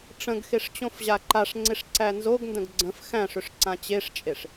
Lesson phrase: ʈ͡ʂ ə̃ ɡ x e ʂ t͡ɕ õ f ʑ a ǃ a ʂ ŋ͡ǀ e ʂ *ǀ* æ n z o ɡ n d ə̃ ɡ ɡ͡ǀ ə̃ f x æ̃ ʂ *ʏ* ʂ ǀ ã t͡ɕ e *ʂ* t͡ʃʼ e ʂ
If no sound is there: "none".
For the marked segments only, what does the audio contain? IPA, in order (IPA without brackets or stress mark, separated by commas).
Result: ǀ, ʏ, ʂ